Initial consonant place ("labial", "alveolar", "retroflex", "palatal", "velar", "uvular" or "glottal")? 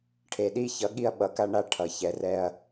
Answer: retroflex